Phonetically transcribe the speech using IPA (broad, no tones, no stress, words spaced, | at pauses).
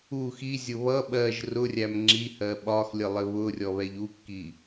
u xizʲʊ βʌ ɓɜʒ rʊrʲæm ŋ͡ǁihɜ ɓɒxlʲəlˠɪ βʊrʲɔβɛʎ ukːi